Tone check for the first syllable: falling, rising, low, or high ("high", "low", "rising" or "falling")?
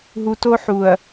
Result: low